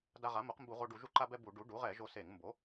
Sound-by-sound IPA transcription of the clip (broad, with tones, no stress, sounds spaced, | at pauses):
d a˧ ʁ a˩˥ m o˩˥ q m b u˧˩˧ ʁ o˧ ɖ u˧˩˧ ʒ u˧ ǃ a˧ b ɛ˧ b u˧˩˧ ɖ u˩˥ ɖ u˩˥ ʁ ɛ˧˩˧ ʒ o˧ s e˧˩˧ ŋ m b o˩˥